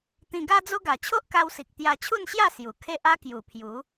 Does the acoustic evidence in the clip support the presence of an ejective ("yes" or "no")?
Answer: no